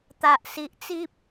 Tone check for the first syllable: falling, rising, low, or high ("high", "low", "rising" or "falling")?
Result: low